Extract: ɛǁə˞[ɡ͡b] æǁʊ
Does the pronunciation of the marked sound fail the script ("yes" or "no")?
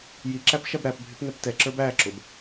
yes